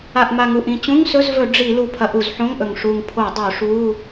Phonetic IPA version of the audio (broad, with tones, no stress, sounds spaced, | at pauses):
a˨˩ ʔ m a˨˩ ŋ u˨˩ ʔ ĩ˨˩ t͡ɕ ũ˧˥˧ ŋ s ɵ˧˥˧ z v ɵ˧˩˧ ɖ͡ʐ i˧˩˧ l u˨˩ pʰ ɐ˧˩˧ ʔ u˧˩˧ z ħ õ˧˥˧ ŋ ʔ ɵ˨˩ ŋ ʂ u˨˩ ŋ pʰ o˧˩˧ dˤ o˧˩˧ ʂ u˧˥˧